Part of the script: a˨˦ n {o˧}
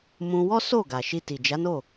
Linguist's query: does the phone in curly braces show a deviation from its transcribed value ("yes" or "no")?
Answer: yes